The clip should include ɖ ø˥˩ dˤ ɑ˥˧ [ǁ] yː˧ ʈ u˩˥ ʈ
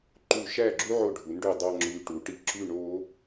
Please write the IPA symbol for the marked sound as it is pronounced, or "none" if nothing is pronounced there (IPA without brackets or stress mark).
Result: ŋ͡ǁ